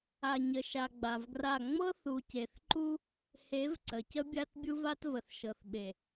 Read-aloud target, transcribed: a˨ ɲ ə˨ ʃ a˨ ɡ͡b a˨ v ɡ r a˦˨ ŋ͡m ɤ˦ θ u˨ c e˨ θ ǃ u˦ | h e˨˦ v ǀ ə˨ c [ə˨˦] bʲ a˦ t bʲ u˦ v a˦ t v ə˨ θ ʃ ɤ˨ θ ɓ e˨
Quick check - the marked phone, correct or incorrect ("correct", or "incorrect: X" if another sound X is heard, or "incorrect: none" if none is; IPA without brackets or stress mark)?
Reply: incorrect: ə˦